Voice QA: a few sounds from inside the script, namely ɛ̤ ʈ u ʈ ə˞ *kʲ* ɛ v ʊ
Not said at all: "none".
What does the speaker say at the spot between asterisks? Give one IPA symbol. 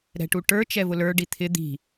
t͡ʃ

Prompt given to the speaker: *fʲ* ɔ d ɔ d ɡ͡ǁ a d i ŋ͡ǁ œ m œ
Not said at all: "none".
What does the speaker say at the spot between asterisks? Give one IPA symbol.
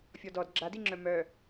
fʲ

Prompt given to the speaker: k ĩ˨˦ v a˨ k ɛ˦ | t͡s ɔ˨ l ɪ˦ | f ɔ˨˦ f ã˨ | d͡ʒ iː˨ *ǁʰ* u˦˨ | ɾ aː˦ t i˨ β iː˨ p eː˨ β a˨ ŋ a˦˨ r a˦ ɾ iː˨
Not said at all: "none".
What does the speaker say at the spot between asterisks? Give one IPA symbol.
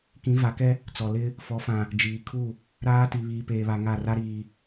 kʰ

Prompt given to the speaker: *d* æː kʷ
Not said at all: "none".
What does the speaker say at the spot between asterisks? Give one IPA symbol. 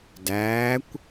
d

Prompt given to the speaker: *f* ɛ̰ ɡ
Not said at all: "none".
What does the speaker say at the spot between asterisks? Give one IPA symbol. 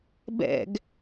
b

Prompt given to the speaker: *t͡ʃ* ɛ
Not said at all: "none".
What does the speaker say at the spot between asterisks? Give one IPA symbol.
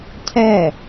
cʰ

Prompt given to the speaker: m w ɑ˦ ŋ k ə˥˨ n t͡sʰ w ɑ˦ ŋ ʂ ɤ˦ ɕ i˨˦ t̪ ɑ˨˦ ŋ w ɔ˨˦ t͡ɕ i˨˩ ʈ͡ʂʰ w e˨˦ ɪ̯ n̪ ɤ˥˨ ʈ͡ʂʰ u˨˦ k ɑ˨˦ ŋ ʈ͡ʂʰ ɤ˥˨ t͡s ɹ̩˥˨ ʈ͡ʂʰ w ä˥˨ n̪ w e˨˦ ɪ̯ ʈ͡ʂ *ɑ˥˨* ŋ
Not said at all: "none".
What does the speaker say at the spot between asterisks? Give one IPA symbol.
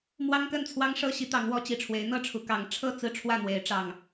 ɑ˨˩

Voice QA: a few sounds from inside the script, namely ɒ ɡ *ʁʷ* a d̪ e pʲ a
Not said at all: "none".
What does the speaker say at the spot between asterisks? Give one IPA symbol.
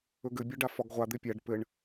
ʁʷ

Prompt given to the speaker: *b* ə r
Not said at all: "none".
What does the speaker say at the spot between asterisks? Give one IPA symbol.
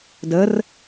d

